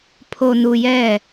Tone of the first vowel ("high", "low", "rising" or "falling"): low